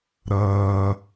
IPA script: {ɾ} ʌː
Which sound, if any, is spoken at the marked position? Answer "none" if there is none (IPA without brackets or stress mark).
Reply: ɾ